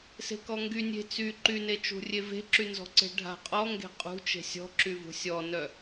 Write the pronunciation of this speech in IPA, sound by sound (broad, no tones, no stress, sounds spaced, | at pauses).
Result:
s e̤ k ɔ ŋ ɡ y nʲ e̤ t͡s y ǃ y n e t͡ʃ ṳ rʲ e v e̤ ǁ y n z ɔ̤ ǀ e̤ ɖʱ a̤ qʼ ɔ ŋ ɡ e̤ qʼ ṳ t͡ʃ e̤ sʲ ɔ̤ ǁ y v ṳ sʲ ɔ n œ